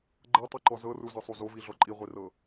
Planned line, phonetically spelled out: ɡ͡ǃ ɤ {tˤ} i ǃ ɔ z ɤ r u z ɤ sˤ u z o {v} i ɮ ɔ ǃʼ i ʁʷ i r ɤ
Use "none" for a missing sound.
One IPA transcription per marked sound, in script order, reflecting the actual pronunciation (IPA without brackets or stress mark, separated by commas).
tˤ, v